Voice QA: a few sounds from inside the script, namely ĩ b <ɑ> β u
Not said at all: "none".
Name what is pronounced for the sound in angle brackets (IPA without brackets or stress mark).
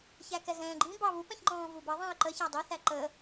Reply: ɑ